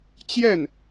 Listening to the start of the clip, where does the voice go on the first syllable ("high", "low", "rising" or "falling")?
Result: falling